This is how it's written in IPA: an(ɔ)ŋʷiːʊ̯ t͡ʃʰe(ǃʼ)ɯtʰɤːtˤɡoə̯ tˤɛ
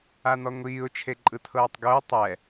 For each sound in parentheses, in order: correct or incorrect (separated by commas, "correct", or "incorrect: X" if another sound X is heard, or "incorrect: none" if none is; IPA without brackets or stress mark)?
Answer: correct, correct